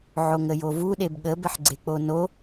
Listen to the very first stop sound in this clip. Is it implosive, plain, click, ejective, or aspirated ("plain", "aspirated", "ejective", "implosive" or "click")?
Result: implosive